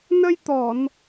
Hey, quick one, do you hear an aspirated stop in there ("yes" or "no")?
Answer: no